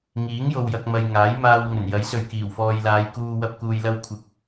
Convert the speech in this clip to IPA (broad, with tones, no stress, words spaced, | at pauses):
ŋiː˨˥ŋjo˨wjɐ˨k̚ mɐ˨jŋaː˨˥jmaː˧w ŋɵ˨˩njɐ˨˥jsɵ˨ɥ kiː˨˩wfɔː˨jlaː˨˧jkuː˧ wɐ˥p̚kuː˧jlɐ˥w kʷʰɪ˨k̚